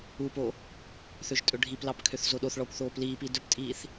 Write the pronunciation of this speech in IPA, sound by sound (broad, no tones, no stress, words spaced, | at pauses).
upo | θøʒtʼɵɖʱiplɑp kʰøθzoɗoθɭɔːkʷ θoːpliːpi dɵptʼiːθ